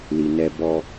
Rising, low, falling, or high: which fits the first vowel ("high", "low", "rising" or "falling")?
low